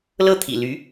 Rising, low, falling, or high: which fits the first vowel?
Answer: falling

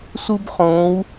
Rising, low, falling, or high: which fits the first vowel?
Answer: high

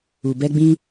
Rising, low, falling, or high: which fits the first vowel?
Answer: low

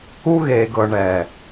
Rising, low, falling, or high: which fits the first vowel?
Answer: high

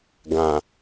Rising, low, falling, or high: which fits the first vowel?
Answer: low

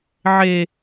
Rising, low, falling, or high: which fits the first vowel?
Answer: high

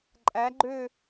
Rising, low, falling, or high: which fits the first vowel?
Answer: rising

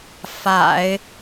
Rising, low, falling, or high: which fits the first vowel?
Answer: low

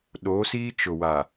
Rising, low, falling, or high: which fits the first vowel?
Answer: rising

